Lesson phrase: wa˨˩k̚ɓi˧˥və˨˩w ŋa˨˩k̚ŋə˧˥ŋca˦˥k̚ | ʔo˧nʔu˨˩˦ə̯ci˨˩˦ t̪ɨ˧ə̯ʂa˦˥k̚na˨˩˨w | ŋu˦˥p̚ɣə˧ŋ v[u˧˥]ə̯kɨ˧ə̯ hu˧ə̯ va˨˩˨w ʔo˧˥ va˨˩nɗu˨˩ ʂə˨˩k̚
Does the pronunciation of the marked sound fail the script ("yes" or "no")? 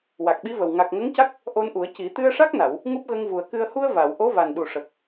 yes